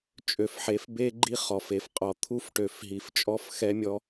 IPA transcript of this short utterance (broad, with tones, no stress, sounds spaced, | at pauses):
t͡ʃʼ ø˨ f ħ e˨˦ f b e˦ ɡ͡ǃ i˦ χ ɔ˨ f e˨ f qʼ ɔ˨ t̪ʰ u˦ f ʈ ø˨ f ɦ i˨ f t͡ʃʼ ɔ˦ f x ɛ˦ mʲ ɔ˦